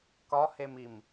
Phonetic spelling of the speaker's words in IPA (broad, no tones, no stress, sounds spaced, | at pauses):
k ɒ h e m i m